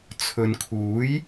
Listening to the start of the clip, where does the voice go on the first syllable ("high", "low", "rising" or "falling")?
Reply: low